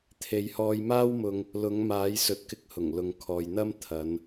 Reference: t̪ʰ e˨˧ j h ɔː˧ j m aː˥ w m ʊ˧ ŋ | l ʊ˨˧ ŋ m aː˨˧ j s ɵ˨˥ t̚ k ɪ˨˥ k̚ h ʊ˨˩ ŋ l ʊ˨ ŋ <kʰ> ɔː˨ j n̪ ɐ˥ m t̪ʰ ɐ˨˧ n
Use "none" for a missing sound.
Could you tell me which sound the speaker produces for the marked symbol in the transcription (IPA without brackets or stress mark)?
kʰ